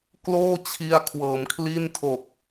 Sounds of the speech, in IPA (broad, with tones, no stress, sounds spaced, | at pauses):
k l oː˥˩ t͡ɕʰ i˧ a̯ kʰ w ɤː˩˦ m kʰ l i˥˩ n tʰ o˨˩ k̚